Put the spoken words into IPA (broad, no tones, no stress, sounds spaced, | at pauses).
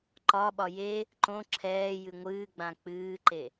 ǃ ɒ ɓ ɒ j e | ǃ õ ǁʰ ɛː j ɨ ŋʷ ɨː ɡ͡b ã k͡p ɨː ǃ e